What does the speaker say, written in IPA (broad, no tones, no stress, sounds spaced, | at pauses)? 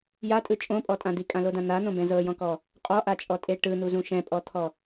j a tʼ ɯ t͡ʃʼ õ pʼ ɔ tʼ ã d̪ i kʼ ã l o d ã n̪ a n̪ õ b ɛ̃ z ɤ j ɔ̃ k ɔ | qʼ ɔ ʔ a t͡ʃʼ ɔ tʼ e ʈ ɯ n̪ u z ũ ʃ ɛ̃ pʼ ɔ t̪ʰ ɔ